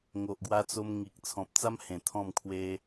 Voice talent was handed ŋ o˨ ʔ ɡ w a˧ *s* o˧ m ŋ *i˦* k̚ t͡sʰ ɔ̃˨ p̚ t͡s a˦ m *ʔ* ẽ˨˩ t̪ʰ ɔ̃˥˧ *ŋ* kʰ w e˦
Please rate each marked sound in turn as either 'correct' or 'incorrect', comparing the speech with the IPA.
incorrect: t͡s, incorrect: i˨, incorrect: h, incorrect: m

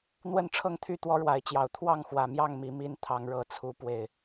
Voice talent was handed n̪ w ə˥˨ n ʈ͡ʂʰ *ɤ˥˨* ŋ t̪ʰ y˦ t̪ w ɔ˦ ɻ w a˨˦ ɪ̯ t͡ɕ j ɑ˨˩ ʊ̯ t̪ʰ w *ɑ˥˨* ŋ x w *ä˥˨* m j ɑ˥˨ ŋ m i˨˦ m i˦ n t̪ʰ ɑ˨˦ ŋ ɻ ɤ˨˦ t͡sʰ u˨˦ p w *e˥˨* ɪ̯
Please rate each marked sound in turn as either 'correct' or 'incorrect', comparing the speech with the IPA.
correct, correct, incorrect: ä˨˩, incorrect: e˨˩

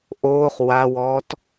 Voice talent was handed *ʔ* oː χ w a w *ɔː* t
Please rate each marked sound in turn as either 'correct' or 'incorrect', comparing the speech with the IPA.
correct, correct

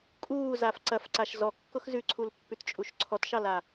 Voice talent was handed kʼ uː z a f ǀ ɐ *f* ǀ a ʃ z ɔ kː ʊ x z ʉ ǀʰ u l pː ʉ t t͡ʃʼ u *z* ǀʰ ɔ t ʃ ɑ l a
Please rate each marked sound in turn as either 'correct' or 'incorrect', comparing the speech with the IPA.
correct, incorrect: ʃ

